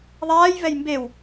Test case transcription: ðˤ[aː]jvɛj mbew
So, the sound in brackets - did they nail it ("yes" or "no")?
yes